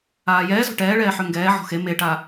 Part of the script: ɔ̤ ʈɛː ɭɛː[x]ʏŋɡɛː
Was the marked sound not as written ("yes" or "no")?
yes